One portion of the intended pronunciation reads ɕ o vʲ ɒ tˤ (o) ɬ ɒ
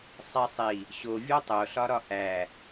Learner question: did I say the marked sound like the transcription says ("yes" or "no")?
yes